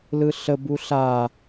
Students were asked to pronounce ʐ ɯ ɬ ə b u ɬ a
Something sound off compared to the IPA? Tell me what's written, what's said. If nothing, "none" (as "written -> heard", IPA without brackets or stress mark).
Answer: ʐ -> l